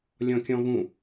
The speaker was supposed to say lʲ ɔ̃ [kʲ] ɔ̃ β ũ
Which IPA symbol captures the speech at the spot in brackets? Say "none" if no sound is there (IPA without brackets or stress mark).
kʲ